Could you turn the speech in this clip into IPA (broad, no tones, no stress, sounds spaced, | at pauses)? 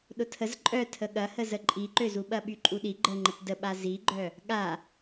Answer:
ɗ ʊ tʰ ə z ǃʼ œ tʰ ə ɠ ɐ h ə z ə ǃʼ i ǃ ø z u ɓ ɐ ɓ y ǃʼ u ɗ i ɡ͡ǃ ə ŋ͡ǃ ə t d ə ɓ a z i ɡ͡ǃ œ | ɠ a